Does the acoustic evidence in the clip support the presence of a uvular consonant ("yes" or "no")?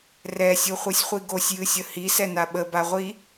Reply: yes